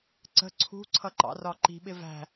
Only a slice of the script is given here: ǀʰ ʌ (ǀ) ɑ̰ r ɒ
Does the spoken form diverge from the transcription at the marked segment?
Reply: yes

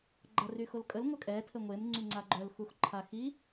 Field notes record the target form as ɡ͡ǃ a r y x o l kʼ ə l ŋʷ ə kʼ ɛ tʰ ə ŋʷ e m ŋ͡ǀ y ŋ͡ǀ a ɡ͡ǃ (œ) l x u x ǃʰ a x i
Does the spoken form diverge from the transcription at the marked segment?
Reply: no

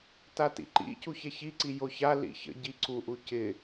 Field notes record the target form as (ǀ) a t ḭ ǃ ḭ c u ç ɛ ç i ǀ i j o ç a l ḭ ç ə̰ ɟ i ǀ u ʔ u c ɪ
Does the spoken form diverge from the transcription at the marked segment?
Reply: yes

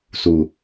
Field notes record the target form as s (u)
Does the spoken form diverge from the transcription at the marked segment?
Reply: no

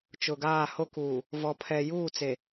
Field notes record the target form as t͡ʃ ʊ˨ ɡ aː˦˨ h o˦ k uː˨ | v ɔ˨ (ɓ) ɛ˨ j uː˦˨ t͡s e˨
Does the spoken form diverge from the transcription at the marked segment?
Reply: yes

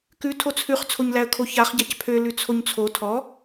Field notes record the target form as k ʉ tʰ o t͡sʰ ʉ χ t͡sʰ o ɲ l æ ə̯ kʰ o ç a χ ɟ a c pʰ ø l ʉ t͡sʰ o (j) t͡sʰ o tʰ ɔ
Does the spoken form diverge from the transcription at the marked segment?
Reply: yes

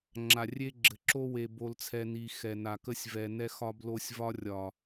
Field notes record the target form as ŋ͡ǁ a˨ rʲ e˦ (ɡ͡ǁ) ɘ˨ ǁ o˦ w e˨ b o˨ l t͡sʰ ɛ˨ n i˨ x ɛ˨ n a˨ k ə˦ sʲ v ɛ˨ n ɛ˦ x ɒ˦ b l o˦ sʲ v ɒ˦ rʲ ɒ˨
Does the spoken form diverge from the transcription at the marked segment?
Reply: no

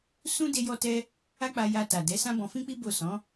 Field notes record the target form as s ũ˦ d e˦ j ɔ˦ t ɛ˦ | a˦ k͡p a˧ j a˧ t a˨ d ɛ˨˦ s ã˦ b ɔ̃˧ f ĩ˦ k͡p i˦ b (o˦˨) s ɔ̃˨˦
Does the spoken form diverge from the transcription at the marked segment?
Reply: no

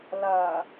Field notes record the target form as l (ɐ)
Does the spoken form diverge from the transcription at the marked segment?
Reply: no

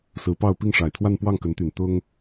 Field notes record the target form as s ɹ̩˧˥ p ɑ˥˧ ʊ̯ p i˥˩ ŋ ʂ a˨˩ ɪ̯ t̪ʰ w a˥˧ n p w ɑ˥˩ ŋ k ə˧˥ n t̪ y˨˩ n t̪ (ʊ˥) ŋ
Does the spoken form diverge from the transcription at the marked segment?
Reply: no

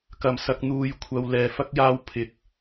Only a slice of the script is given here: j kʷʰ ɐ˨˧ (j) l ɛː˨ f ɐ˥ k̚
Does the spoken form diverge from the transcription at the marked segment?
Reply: yes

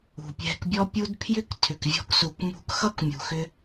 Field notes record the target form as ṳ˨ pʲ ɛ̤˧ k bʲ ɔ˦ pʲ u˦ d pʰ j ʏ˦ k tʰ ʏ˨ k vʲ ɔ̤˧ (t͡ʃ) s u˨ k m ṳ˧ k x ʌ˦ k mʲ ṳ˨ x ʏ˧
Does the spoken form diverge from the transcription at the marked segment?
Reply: yes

